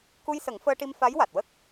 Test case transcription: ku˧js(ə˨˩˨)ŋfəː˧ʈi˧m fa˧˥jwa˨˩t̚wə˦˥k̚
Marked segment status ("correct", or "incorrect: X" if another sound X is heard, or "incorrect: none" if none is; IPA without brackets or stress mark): incorrect: ə˨˩˦